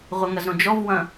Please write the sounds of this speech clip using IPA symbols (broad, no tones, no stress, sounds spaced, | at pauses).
ʁʷ ɘ ŋ ɐ z ɾ õ d͡ʒ ɔ v w ɐ̃